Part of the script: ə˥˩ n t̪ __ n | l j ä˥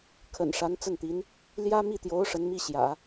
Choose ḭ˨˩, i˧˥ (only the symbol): i˧˥